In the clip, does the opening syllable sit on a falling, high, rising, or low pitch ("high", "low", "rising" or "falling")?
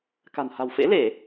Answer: low